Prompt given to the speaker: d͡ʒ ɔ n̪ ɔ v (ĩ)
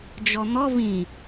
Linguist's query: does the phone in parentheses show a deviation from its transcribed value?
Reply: no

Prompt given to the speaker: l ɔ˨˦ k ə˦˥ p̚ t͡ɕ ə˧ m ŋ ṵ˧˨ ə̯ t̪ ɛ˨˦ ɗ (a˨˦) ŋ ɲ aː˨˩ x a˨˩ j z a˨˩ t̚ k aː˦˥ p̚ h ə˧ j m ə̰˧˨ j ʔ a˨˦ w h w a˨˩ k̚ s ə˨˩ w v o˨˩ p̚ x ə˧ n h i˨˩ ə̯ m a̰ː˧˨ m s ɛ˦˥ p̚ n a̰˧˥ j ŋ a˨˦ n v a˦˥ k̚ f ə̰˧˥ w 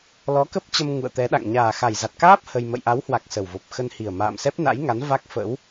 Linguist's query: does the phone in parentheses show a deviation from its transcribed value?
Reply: yes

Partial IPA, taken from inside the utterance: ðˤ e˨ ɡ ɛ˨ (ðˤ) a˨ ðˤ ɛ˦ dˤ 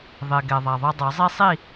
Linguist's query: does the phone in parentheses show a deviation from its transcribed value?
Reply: no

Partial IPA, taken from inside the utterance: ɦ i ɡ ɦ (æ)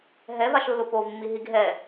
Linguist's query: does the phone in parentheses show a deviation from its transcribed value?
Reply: yes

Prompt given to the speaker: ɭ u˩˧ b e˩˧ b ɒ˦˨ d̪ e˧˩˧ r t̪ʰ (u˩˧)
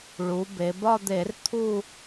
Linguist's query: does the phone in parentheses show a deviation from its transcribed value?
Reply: yes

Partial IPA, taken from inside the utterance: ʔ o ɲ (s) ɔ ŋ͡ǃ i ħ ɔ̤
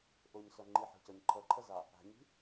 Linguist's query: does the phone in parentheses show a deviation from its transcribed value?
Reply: no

